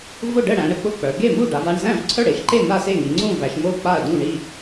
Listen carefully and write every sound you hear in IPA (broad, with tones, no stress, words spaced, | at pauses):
vʊ˥˩ɖə˥˩ɽæ̃˩˧ɽə˥˩ k͡pʊ˥˩k͡pœ˩˧ ɡe˥˩mu˥˩ɖa˩˧va˥˩ɳ zæ̃˥˩vǀʰœ˥˩ɽe˩˧ʃǃe˥˩ n̪a˥˩se˥˩ŋi˩˧ ŋ͡ǀũ˥˩væ˩˧ʃ mo˥˩k͡pa˥˩ɐ̯dũ˥˩ ɳi˥˩